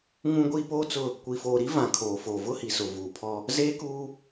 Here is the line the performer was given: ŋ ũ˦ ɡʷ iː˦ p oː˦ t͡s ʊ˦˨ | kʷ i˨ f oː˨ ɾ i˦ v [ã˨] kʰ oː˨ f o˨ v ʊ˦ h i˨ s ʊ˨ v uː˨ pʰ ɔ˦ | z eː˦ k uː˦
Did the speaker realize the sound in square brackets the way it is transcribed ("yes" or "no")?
yes